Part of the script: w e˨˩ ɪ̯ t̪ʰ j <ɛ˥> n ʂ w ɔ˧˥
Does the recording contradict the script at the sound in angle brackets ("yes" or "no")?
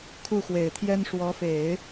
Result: no